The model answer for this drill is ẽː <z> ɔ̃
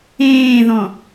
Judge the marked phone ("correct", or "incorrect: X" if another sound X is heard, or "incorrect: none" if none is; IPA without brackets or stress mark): incorrect: ð